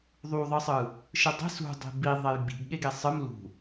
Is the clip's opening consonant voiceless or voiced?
voiced